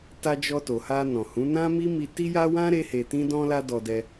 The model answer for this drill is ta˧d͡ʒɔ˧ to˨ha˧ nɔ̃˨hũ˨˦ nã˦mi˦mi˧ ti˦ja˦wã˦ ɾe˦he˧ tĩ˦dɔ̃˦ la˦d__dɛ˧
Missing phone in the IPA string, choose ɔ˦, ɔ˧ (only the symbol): ɔ˧